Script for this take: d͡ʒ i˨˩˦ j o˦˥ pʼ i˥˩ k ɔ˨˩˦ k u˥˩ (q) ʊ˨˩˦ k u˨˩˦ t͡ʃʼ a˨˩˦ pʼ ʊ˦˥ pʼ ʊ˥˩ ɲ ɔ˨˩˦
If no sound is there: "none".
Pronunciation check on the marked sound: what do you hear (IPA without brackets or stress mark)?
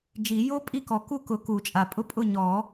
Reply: k